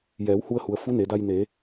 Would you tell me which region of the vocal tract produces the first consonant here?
palate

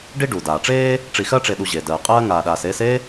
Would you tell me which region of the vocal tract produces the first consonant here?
retroflex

